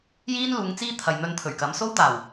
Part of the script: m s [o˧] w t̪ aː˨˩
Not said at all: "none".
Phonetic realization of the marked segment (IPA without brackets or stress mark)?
o˥